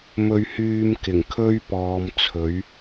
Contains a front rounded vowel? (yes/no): yes